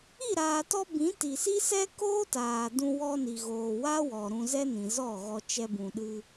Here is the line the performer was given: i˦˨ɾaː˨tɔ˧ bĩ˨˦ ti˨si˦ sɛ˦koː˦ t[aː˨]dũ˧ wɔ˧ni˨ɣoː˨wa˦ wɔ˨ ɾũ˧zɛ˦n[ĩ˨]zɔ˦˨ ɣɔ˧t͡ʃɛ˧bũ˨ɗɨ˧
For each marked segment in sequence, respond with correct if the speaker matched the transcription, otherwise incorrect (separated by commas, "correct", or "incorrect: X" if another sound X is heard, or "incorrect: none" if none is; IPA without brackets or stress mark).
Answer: correct, correct